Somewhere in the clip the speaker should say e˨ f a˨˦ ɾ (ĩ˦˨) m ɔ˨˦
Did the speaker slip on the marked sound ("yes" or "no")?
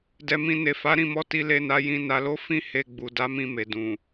no